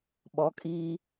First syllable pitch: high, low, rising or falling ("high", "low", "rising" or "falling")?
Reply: rising